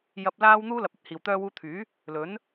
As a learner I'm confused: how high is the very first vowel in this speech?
low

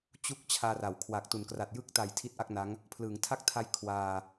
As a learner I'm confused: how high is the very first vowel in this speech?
high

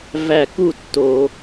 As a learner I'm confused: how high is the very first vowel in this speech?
low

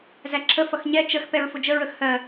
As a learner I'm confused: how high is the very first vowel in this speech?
low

